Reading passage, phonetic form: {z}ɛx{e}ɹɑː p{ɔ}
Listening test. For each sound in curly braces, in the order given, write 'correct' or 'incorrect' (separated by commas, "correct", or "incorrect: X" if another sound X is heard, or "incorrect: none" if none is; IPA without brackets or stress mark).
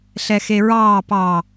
incorrect: ɬ, correct, incorrect: ɑ